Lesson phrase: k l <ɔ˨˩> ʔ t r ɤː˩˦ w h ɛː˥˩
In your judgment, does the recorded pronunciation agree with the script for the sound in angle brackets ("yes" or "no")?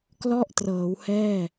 no